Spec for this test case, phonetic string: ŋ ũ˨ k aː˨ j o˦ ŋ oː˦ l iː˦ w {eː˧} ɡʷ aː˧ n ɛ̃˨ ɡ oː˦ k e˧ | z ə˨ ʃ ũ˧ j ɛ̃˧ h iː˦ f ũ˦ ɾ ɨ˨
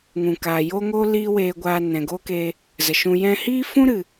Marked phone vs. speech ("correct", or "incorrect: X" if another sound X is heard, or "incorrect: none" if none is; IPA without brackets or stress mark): correct